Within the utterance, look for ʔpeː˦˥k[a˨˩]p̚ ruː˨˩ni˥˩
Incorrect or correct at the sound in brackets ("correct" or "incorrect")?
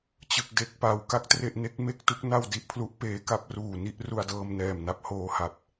incorrect